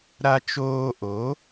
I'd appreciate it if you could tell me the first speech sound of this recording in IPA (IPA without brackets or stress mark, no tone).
ɾ